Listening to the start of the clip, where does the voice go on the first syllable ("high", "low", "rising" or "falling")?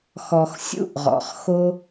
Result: low